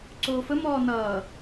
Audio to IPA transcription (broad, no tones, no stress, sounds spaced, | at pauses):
ǀ oː f ə m ɔː n ʌː